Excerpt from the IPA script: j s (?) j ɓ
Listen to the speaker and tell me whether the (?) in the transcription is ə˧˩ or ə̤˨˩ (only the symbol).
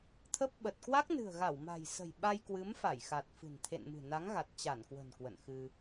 ə̤˨˩